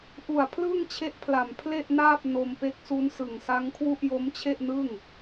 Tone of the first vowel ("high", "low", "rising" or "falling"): low